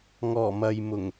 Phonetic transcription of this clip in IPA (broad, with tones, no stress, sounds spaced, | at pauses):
ŋ ɔː˨˩ m ɐ˨ j m ʊ˨˩ ŋ